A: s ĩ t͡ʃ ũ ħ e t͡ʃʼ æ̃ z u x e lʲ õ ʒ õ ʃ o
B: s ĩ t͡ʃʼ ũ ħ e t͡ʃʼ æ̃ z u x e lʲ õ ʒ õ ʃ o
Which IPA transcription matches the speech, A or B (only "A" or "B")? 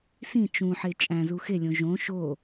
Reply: A